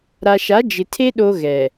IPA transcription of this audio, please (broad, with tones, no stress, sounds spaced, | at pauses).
ɾ a˨ ʃ a˨˦ d͡ʒ ɪ˨ tʰ e˦ ɗ o˦ ɣ ɛ˨